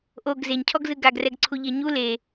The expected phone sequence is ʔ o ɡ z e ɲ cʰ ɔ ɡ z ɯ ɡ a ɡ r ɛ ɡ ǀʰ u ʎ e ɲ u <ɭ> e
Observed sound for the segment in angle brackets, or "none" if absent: l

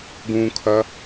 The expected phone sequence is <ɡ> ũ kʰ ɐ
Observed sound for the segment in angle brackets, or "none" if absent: ɡ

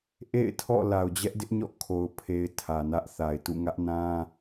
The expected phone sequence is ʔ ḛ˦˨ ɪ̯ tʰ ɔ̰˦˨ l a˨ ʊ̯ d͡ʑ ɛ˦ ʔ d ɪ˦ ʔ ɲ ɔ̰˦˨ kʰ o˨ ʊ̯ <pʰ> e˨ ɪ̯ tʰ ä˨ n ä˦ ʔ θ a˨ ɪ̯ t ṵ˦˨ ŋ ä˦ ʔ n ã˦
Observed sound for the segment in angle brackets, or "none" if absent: pʰ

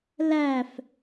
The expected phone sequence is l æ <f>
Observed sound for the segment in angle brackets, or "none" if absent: f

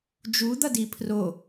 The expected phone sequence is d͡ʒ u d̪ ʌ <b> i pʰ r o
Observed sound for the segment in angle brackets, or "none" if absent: d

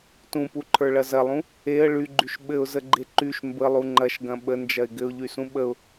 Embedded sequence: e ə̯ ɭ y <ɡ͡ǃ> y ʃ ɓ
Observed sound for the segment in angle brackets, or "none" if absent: ɡ͡ǃ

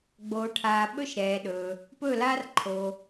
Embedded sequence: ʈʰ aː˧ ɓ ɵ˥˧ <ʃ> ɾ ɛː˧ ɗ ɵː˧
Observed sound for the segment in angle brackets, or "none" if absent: ʃ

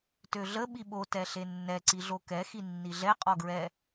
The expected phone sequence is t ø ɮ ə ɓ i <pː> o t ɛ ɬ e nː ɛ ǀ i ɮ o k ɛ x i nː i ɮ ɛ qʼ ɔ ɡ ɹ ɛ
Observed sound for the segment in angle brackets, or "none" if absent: ɓ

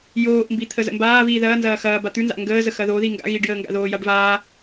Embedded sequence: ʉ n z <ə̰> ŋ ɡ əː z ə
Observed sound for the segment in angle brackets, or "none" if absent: a̰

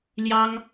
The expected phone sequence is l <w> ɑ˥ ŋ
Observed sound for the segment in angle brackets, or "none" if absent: j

